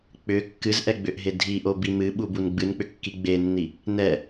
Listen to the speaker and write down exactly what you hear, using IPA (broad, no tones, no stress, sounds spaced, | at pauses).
k͡p ʏ kː ɨ z ʔ ɛ ɡ͡b ʏ ʔ ɦ e dʱ i ʔ o b i m ɨ ɓ u b u n ɡ͡b ɨ n k͡p ʏ kː i ɡ͡b e nː i | n ɛ